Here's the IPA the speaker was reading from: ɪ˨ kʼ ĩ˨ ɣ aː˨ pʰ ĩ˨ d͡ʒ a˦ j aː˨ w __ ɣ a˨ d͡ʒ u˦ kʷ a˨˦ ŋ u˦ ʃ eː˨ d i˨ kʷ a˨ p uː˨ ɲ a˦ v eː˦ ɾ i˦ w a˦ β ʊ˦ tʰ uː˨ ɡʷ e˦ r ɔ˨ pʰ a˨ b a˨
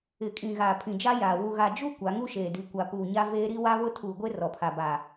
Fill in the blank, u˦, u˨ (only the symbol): u˨